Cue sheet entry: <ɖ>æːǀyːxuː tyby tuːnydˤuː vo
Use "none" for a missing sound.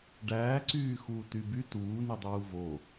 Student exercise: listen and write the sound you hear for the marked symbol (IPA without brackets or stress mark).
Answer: ɖ